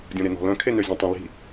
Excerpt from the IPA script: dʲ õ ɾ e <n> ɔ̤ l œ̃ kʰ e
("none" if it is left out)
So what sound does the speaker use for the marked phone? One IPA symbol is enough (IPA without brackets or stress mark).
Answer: n